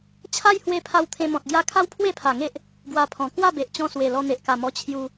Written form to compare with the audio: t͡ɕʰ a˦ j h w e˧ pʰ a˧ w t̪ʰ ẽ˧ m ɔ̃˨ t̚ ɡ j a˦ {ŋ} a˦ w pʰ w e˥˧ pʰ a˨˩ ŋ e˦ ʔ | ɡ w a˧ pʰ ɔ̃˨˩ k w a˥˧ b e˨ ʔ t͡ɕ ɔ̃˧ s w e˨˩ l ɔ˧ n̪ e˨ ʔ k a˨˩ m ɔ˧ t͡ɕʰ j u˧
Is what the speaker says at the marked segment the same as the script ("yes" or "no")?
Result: no